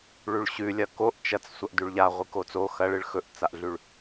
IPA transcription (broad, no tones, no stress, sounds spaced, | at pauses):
ɭ ʉ ɭ ɕ ʉ lʲ ɐ k o ʔ t͡ʃ ɐ t͡s sʷ ɐ ʔ d ʉ ɭ ʎ a ʁʷ ɨ k o t͡s o x ɐ ɭ ɨ ɭ x ɵ ʔ t͡s a ʔ ɮ ʉ ɭ